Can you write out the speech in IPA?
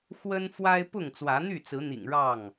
xwə˦n fwa˦ɪ̯pʊ˥˨ŋ t͡swä˨˦n̪y˥˨t͡sɹ̩˨˦n̪ḭ˨˩ŋ ɻɑ˥˨ŋ

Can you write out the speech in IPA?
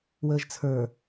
wəːʒt͡sʰə˞

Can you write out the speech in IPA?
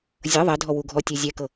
zʲɤ ðˤɛdʱɔ wuɡʱɔtʲe zʲɛkɤ

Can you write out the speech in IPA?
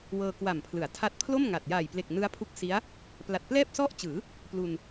wɤː˧kwa˨˩mpʰlɯ˩˦a̯ tʰa˦˥t̚pʰlo˥˩mŋa˨˩t̚ ja˨˩jple˨˩k̚ nɯ˦˥a̯pʰu˦˥k̚si˦˥a̯ | pla˨˩t̚plɛː˥˩p̚sɔ˥˩ʔt͡ɕɯː˩˦ | plu˧n

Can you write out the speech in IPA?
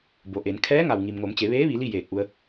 bo˩ʔe˩˧n kʰɛː˧˥ŋa˩wŋi˩m ŋo˩˧mt͡ɕe˩˧ʋeː˧˥ʋi˩˧ li˥˨jeː˧˩k̚ʔu˧ə̯

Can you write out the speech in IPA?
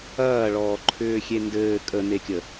ɐːɭɔːǃʰʏː xʲendɘː kʼənekʲə

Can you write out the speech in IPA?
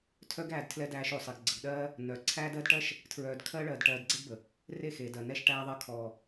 tʰœ˦ɡæː˧d tʰlɛ˦dæː˧ʃo˨ sˤe˨ɡɡ͡ǀə˨ɡɗɜː˦ | nœ˨ǀʰæː˦d ɜ˦dʈɜ˦ʃ | tʰɹœː˧d kʰɜ˦ ɭɜː˨dʈɜː˨d ɡ͡ǀɛ˦ɡbə˨ | re˦˨xeː˨ dɜ˨ nɛ˧ʃʈæː˧ðˤɜ˧ kʰɔ˨

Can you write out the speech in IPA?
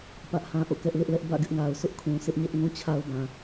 pä˦ʔhã˦ʔo̰˦˨ kɛ˦ʔlɪ˦ʔlɛ˦ʔ bä̰˦˨ɡɪ˦ʔŋa˨ʊ̯sʰʊ˦ʔ kʰũ˨sɪ˦ʔɲɛ˦ʔ ŋũ˦t͡ɕʰa˦ʊ̯bã˨

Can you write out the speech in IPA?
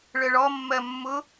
ɭœɭɔ mːɜmːʊ

